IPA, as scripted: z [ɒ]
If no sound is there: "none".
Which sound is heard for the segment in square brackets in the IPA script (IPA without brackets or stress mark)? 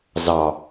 ɑ